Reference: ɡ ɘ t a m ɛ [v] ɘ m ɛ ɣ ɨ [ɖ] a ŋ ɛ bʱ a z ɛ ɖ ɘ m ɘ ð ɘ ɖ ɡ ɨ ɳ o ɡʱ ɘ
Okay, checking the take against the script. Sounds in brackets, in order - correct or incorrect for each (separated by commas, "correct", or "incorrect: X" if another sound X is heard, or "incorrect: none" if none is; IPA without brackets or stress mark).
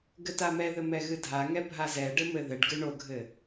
incorrect: ð, incorrect: dʱ